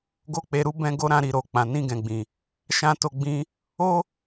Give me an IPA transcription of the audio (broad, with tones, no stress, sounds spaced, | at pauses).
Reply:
ɡ o˦ k͡p e˧ ɾ u˦ b ɛ̃˧ ɡ o˧ ɾ ã˧ ɾ i˨ ɾ o˨ k͡p ã˨ n ĩ˧ ɡ ɛ̃˨ ɡ͡b ĩ˨ | ʃ ã˦ t o˦˨ ɡ͡b ĩ˧ | o˦